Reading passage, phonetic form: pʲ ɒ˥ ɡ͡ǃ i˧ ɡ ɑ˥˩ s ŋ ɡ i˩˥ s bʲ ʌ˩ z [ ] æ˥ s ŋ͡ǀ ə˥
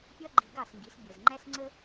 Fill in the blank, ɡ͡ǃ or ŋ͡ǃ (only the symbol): ŋ͡ǃ